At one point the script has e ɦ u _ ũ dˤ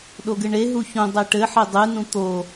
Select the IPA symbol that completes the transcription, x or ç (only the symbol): ç